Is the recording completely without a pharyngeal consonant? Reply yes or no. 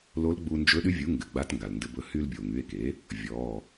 yes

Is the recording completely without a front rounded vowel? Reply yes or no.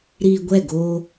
yes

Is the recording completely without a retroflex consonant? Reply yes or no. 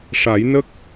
no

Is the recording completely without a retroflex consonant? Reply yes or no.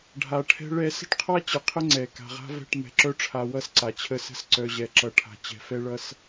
no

